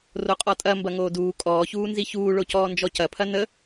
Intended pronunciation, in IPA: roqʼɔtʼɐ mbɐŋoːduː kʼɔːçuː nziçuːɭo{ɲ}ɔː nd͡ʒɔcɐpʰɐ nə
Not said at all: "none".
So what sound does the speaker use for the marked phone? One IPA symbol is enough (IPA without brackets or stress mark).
c